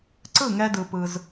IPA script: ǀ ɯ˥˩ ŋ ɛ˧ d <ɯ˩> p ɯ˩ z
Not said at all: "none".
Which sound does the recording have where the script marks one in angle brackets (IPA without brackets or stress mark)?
ɯ˩